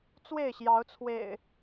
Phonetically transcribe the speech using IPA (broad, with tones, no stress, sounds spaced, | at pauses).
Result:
t͡s w e˥˨ ɪ̯ ɕ j ɑ˨˦ ʊ̯ t͡sʰ w ḛ˨˩ ɪ̯